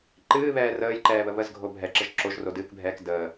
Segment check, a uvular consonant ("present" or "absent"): absent